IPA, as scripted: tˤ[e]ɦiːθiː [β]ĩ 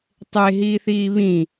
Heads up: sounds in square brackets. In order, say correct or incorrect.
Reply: correct, correct

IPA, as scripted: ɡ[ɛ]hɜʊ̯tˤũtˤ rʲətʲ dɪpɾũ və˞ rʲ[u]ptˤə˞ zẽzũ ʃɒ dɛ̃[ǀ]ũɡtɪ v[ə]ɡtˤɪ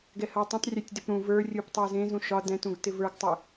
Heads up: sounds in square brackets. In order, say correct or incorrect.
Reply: correct, correct, incorrect: t, incorrect: ə˞

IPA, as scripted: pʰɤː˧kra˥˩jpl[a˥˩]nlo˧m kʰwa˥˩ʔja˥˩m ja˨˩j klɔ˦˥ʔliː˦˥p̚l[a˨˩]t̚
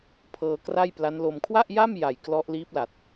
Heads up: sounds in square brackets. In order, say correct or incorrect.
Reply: incorrect: a˦˥, correct

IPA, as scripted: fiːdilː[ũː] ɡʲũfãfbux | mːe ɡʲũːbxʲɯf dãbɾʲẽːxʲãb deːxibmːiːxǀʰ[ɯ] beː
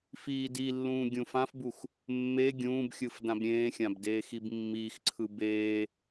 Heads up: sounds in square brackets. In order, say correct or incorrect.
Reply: correct, correct

